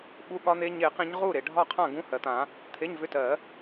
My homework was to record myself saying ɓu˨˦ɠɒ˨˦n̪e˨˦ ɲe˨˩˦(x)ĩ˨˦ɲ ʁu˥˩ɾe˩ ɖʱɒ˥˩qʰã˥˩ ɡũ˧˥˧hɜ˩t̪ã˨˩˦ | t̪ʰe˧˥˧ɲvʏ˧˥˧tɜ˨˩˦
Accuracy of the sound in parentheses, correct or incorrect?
incorrect: q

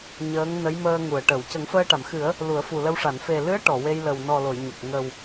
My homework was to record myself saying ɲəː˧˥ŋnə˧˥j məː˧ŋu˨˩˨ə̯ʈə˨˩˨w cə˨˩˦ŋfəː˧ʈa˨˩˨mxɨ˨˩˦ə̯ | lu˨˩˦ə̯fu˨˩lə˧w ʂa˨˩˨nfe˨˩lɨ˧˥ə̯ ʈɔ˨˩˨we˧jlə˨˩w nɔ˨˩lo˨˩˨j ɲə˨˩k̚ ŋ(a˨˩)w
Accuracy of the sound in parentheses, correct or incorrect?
incorrect: ə˨˩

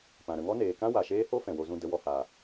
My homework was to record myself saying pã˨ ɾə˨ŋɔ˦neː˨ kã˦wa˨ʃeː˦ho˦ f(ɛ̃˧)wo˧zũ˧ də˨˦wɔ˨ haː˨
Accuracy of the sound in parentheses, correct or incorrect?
incorrect: ɛ̃˨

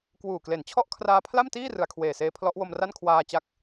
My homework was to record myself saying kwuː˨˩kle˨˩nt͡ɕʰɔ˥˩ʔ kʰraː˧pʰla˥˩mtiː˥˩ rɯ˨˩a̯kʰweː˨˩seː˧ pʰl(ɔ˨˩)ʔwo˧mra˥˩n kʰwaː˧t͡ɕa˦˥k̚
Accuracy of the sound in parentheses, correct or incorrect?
incorrect: ɔ˦˥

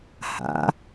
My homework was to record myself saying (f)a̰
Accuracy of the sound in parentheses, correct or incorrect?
incorrect: h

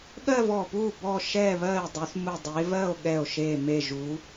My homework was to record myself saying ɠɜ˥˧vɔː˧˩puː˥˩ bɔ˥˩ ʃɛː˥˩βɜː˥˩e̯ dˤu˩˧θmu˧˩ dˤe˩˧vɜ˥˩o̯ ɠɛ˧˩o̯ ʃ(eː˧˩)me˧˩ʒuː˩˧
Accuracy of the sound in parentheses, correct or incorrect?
correct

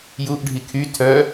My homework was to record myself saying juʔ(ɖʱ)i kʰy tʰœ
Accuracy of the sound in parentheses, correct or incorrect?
correct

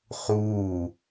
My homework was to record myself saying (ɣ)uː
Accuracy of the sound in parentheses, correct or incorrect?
incorrect: χ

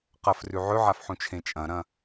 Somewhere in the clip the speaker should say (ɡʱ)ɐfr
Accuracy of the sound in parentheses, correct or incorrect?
incorrect: q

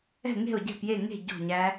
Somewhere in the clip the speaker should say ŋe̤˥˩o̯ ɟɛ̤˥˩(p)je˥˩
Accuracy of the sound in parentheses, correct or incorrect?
correct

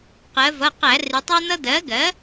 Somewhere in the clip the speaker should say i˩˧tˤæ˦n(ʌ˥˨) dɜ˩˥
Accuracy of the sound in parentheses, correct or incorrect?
incorrect: ʌ˦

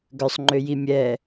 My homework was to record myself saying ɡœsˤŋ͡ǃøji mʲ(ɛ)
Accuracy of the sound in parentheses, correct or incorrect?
correct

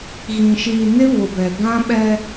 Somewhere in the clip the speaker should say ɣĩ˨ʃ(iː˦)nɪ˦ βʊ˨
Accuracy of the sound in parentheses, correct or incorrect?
incorrect: iː˨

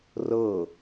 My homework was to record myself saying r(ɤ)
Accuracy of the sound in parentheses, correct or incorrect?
correct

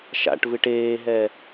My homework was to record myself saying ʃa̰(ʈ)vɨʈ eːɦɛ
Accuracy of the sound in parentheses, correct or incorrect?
correct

